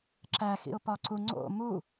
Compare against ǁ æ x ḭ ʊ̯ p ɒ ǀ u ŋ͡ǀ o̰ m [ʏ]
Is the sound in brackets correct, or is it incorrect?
incorrect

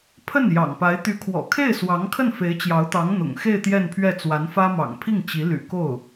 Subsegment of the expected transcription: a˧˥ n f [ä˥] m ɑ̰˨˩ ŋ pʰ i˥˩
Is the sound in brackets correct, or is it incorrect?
correct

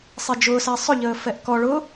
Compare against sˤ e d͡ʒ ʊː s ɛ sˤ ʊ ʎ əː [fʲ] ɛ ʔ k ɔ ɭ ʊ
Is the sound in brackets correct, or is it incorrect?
incorrect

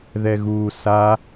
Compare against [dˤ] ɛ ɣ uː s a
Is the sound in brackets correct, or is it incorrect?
incorrect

